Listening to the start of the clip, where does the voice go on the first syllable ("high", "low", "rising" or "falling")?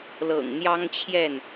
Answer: low